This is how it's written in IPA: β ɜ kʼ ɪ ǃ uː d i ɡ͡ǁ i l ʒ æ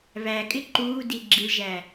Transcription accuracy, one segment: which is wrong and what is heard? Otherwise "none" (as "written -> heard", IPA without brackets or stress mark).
ɜ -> æ